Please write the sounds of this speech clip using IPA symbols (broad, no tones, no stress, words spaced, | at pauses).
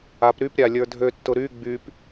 ap ɾyp ɾʲalʲə˞dʱøtːʊ ɾy ɡ͡byp